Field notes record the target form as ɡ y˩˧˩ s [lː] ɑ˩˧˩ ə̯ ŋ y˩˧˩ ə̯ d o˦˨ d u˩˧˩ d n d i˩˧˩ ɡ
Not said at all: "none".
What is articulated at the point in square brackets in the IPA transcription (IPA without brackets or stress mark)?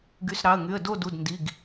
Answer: ɾ